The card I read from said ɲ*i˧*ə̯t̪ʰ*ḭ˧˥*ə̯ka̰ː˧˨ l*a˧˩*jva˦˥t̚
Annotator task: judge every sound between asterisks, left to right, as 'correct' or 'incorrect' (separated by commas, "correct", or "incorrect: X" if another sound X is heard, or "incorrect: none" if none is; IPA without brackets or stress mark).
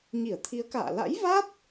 incorrect: i˧˩, incorrect: i˨˦, incorrect: a̰˧˥